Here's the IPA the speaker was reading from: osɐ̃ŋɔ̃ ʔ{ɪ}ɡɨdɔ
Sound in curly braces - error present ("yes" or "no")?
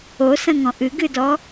yes